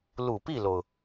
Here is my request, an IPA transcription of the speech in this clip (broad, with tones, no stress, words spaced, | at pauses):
lu˨˩pi˥˩lo˩ʊ̯